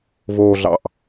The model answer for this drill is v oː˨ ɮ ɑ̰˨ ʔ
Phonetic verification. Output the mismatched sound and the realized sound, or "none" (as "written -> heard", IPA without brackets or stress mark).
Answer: none